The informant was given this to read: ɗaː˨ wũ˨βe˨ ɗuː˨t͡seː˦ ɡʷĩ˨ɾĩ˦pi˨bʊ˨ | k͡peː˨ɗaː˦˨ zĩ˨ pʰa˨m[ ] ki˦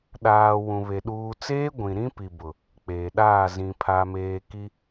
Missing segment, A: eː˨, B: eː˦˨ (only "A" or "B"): A